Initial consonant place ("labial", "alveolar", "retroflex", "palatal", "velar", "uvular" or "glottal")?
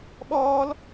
labial